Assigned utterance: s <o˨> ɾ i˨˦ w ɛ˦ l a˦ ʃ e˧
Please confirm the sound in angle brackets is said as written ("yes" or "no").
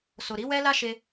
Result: yes